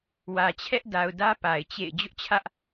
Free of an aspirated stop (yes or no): no